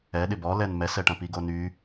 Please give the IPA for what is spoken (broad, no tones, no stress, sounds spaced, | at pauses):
ɛ ɗ ɪ b ɔ l ɛ n m ɛ s ɛ ʈ ɐ̃ p i ɡ o n y